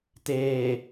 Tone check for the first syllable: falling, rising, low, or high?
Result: low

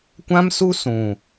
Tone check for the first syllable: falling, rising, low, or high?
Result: high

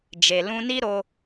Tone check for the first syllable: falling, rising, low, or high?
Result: low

